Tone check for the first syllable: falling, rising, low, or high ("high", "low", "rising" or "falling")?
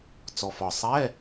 low